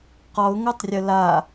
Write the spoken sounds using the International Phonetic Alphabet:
q ɔ ʊ̯ ŋ o tˤ rʲ ə l a

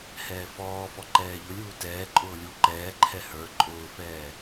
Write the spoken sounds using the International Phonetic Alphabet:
h ɛː f ɔː f ɔ ǃ ɛː ʎ ʊ lʲ uː t ɛː ǃʼ ʊː lʲ u ǃ ɛː ǃʰ ɛ h ə˞ ǃʼ ʊː f ɛː

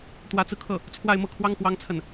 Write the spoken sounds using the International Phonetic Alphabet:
t̪ w ä˧˥ t͡s ɹ̩˧ kʰ ɤ˥˩ | t͡sʰ w a˥˧ ɪ̯ m ɤ˥˩ kʰ w ɑ˥ ŋ x w ɑ˥ ŋ t͡sʰ ə˥˩ n

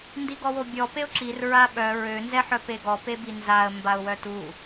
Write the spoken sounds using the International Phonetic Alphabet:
n d i ɡ ɔ w o bʲ ɔ p e ʊ̯ ǁ i r ɹ a ɓ œ ɹ ø n z ɛ ħ œ p e ɡ ɔ p e b i n z a ə̯ m b a ʊ̯ w œ t u

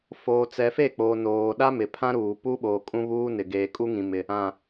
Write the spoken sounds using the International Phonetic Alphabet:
f oː˨ t͡s ɛ˨ f e˦˨ k͡p oː˨ n oː˨ ɗ a˦ m ɪ˨ pʰ ã˦ ɾ uː˨ p u˦ ɓ oː˨ kʼ ũ˦ β uː˦ n ɪ˨ ɡ eː˨ kʼ u˦ ŋ ĩ˨ m ɪ˨ | ã˨

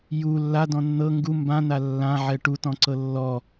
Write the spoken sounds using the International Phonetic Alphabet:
j u lː a d ɔ̃ nː ɤ ŋ ɡ u m b ã n a lː ã ʕ ɛ ʈ u t ɔ̃ ǀ ɤ lː ɔ

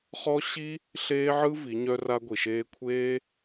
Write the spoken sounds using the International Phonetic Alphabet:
χ ɔ˦ ɕ i˦ | ɬ eː˦ ʕ ɯ˦ v i˨˦ ɲ œ˦ r a˦ ɡʷ i˨ ʃ eː˧ kʷʰ eː˦

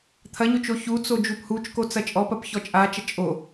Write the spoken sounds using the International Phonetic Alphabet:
t̪ʰ ɐ ɲ o t͡ʃ o ç u t͡s o d͡ʒ u p h u t͡ʃ k o t͡s ɐ t͡ʃʼ ɔ p ɐ p ç ɔ t͡ʃʼ a t͡ʃ ɐ t͡ʃʼ o

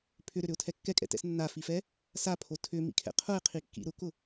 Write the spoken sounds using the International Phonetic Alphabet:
pʰ ʏ ɾ ʏ ɾ ʏ ʊ̯ tʰ ɛ kː ɛ kʼ ɛ̰ t ɛ̰ s nː a f i f ɛ | s a pʰ o tʰ ʏ m ḭ kʰ ɛ̰ qʰ ʊ ɪ̯ qʰ i kː ḭ ɾ ʊ k ʊ

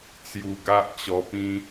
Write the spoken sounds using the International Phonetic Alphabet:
t͡s j u˧ ɡ a˦ ʔ t͡ɕ ɔ˧ p ĩ˦

